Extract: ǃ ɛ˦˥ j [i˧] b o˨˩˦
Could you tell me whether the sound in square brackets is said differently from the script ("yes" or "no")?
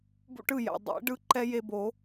yes